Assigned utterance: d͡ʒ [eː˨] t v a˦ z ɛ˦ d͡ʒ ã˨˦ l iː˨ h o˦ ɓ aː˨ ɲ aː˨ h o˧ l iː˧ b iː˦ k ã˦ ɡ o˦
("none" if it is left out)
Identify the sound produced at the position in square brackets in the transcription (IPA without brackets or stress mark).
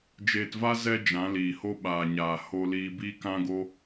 eː˧